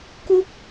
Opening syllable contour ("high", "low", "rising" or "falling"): high